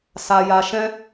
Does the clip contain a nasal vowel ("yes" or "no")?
yes